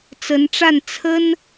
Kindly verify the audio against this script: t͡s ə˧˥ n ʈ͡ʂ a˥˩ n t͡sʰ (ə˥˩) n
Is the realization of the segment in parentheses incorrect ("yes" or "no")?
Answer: yes